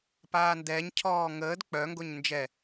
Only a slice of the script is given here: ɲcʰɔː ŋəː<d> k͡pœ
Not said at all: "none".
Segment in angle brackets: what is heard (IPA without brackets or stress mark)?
d